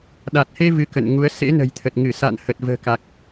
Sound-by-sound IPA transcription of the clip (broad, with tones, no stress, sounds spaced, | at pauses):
ɗ a˨˩ t̚ h e˧ v ɨ˨˦ k ə̰˧˨ n ŋ u˨˦ ə̯ s ḛ˧˥ n ə̤˨˩ j t̪ʰ ə˨˩ t̚ ŋ ɨ˧˩ s a̰˧˨ n h ə˨˩ t̚ v ə̤ː˨˩ k a˨˩ k̚